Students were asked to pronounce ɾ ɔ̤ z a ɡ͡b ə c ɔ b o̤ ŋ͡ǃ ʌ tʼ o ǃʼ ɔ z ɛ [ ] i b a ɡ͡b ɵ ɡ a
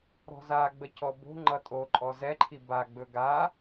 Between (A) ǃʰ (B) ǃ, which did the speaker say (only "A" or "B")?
A